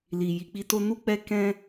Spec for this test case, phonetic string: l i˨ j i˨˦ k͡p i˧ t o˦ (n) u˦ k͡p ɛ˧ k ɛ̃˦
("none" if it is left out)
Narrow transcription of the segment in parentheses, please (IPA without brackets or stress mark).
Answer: n